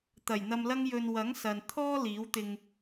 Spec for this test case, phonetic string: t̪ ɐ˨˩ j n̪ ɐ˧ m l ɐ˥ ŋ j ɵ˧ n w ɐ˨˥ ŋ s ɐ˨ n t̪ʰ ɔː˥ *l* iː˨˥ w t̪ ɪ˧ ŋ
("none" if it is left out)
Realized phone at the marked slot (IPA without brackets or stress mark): l